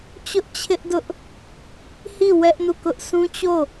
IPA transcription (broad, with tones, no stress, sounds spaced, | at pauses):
t͡ɕ ʊ˦ ʔ t͡ɕʰ ɪ˦ ʔ d ʊ˦ ʔ | h i˦˨ w ɛ˦ ʔ n u˦˨ k ʊ˦ ʔ sʰ ũ˦ t͡ɕ o˦˨